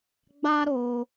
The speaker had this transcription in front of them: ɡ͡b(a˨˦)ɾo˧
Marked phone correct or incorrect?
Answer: incorrect: a˦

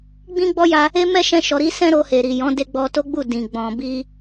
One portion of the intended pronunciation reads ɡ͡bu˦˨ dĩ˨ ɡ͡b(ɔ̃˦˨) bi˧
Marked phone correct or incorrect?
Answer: incorrect: ɔ̃˨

